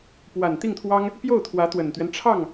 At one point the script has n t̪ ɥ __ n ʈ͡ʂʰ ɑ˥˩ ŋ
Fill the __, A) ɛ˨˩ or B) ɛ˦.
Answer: B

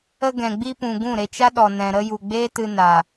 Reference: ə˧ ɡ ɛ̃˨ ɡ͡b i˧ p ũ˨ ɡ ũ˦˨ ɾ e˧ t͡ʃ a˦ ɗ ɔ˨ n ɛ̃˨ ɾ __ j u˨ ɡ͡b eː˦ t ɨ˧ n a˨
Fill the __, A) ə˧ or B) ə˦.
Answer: A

